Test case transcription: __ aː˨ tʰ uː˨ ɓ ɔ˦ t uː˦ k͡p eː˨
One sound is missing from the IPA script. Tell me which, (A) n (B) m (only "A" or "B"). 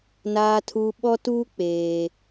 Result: A